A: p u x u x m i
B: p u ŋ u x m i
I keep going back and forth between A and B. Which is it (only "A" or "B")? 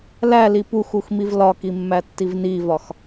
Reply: A